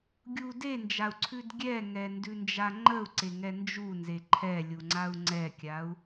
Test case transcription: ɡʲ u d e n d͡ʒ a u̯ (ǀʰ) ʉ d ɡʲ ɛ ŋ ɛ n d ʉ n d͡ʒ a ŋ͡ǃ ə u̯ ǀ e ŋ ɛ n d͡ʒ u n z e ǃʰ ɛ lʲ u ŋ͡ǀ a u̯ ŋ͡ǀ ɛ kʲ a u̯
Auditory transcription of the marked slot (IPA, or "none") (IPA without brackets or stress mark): ǀʰ